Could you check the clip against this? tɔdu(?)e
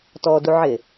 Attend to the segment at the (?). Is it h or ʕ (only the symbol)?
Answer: ʕ